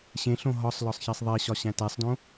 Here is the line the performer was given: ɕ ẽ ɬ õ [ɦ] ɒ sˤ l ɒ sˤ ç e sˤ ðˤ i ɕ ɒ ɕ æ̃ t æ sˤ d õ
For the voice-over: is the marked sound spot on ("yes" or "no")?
yes